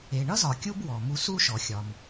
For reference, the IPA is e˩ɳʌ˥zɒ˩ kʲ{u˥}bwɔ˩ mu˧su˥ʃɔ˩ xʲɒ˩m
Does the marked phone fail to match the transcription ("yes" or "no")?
no